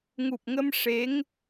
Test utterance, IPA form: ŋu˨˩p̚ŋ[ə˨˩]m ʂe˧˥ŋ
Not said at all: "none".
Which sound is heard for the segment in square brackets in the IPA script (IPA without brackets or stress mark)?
ə˧